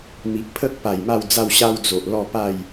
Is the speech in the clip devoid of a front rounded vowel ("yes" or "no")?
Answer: yes